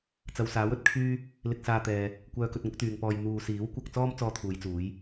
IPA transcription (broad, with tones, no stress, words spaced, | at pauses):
t͡sɐ˨wsaː˨˥wɵ˧t̚kʰyː˥ | lɪ˧k̚saː˧t̪ɛː˨ | kʷœː˧kɵ˧t̚ŋʊ˨˥k̚t̪yː˨ŋ pɔː˨j n̪uː˨siː˨˥wkʷɐ˧k̚t͡sɔː˥m t͡sɔː˥t̪ʰuː˨˧jt͡suː˨˥j